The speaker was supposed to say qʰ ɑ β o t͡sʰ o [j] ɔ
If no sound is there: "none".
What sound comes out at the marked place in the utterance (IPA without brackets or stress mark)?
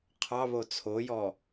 j